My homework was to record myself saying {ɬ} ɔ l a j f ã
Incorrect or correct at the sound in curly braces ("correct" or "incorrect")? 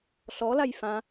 correct